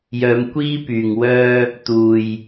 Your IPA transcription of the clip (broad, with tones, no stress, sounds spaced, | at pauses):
j œː˨˧ m kʷ iː˥ p yː˨ ŋ w œː˧ | t̪ uː˨ j